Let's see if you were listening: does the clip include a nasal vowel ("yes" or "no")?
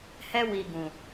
yes